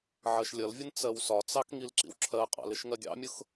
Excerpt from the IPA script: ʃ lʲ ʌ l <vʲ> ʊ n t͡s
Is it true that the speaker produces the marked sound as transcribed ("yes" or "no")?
yes